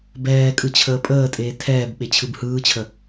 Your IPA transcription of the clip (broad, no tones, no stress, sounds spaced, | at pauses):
b ɛː kʼ ɯ t͡ɕʰ əː pʼ əː tʼ eː tʰ ɛː b ɓ e t͡ɕʰ ɯ b h ɯː t͡ɕʰ ə